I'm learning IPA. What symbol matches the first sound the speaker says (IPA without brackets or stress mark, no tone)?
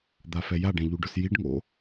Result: d̪